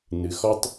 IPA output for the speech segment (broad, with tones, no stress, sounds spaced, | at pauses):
n ɨ˩ x ɔ˥ tˤ